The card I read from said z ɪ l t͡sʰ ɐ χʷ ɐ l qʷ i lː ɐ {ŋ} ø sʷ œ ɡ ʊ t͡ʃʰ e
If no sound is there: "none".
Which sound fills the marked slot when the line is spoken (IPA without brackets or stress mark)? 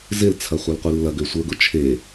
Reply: ɡ